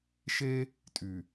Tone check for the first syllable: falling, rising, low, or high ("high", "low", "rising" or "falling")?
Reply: high